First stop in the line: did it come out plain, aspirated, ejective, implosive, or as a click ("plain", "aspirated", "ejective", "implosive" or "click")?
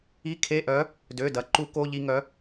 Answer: aspirated